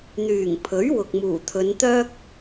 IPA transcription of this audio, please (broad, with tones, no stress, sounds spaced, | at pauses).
n̪ yː˨˩ ŋ pʰ ɵ˨˥ ɥ w ʊ˨ k̚ m uː˨˩ t̪ʰ ɵ˨˧ n t̪ œː˥ k̚